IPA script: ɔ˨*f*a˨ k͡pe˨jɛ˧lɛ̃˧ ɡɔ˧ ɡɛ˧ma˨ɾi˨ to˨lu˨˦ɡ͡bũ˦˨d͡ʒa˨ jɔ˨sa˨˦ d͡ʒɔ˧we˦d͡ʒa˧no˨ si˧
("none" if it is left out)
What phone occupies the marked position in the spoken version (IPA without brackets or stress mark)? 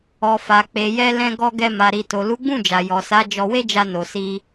f